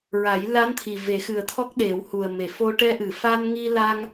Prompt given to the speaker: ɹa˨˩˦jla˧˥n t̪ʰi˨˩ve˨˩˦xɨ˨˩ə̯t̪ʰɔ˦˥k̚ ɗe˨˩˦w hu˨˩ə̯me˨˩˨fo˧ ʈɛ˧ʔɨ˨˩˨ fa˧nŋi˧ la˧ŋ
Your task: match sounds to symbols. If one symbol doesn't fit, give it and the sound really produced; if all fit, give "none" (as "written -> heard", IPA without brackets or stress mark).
none